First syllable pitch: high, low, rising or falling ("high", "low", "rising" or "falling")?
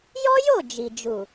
high